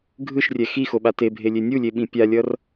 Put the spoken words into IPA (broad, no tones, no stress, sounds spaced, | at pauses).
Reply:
ɡʱ ɯ ʃ rʲ ɛ x i x o ɓ a t e bʱ e lʲ e nʲ u lʲ e ɓ ĩ pʲ a lʲ ʌ r